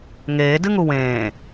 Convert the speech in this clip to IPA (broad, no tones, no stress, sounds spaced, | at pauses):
ŋ eː d ɨ ŋ u w ẽː